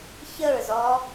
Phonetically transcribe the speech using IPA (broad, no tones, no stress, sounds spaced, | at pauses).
ç ə ɹ z ɔ